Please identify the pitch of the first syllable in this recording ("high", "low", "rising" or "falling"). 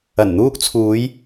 low